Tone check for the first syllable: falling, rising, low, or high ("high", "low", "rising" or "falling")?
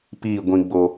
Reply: falling